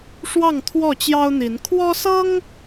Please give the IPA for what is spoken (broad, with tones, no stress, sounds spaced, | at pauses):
ʂ w ɑ˥˨ ŋ t̪ʰ w ɔ˥˨ t͡ɕ j ɑ˦ ʊ̯ n̪ i˨˦ n kʰ w ɔ˦ s ɤ˦ ŋ